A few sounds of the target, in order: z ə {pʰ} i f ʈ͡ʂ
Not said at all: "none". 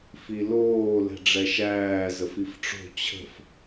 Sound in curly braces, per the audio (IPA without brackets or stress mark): f